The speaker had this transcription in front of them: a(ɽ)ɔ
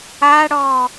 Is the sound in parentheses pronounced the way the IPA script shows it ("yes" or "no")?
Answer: yes